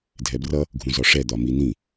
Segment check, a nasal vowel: present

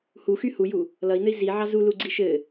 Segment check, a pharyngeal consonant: present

